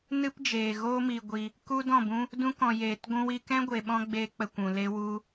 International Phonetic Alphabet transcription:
nɨ˦pd͡ʒeː˨ɣoː˦ mi˨ ɡʷi˧ | ku˦dɔ̃˦˨bũ˦ | dũ˧kɔ̃˨jeː˨t ɡʷũ˦wi˦ kɛ̃˦ɡʷe˨ɓɔ̃˧ ɡ͡beː˦k͡pə˧kʷũ˨ le˧wu˧

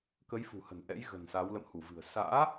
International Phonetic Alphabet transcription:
kə˨˦j fṳ˨˩hə̤˨˩nʔɛ̰˧˥j ɣə̤˨˩nsa˨˦w lə̰˧˨mhu˧˩vɨ̤˨˩ə̯ sa̰ː˧˥

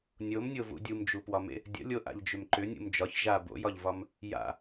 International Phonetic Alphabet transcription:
nʲomnʲovṵ dʲumd͡ʒupwɒmḛ | dʲə̰lʲoʔa̰ʎd͡ʒʏm ǃʏnʲṵm d͡ʒɒç ʒa bo̰jɒʎvɒm | ja̰

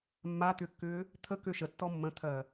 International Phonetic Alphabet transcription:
mːat̪ʏːkːʏː | t̪ʰəkø ʃətːɔ mːə̃t̪ʰɜ

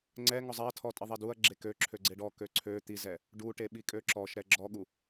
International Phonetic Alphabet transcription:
ŋ͡ǀɛ ŋɔzˤɛɐ̯tʰɔtʼi ðˤɛduɐ̯ ɡ͡ǁekøǁʰø ɡ͡ǀeɖɔ køǀʰø t̪izɛ | ɖuʈeɓikʼø ǁɔʃɾɛ ɡ͡ǁɔɠu

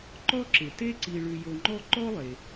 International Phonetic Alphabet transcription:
ǃɔ˦ǁɪ˩te˦ǀi˨ ɭʉ˨jo˨ŋ͡ǃɔ˦ ǃɔ˥lˠe˩

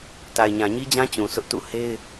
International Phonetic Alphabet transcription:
ta˨ɪ̯ɲã˨ɲi˦d͡ʑã˦ t͡ɕũ˨sʰʊ˦ʔtṵ˦˨ he˦ɪ̯

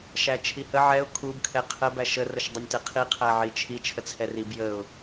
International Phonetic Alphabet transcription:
ʃæt͡ʃʰihə ʕɛʊ̯ kʰub kʰɛqʰə bæʃə rəʃdˤənʲtɛqʰi qʰæʕit͡ʃʰi t͡ʃʰət͡sʰɛrib jəʊ̯

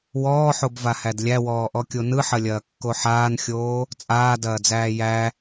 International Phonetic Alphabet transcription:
wɔːħobvahæd lʲæwɔːʔɔkʲo nɯħɐlʲɐːkːo ħaːnxʲoː | t͡sʼaːdɐːd͡zæː jæ

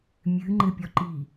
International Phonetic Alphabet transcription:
mʲɨ ŋ͡ǃɘpʲɔǃi

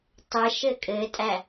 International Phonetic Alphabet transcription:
tˤɘ ʃɘkʼɘtʼæ

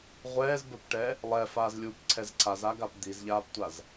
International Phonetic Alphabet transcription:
ʁʷɛːzbə˞pʈɛ | lˠɛfaːzlʲuːpǀʰɛz ǀʰazaɡap d̪izʎaːptʷaz

